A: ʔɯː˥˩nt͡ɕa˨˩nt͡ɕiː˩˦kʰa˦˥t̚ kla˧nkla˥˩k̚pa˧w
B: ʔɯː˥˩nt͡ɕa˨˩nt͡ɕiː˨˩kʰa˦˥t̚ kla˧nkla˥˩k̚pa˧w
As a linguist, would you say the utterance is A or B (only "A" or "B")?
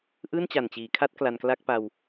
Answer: A